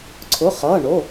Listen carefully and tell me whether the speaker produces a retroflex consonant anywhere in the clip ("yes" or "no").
yes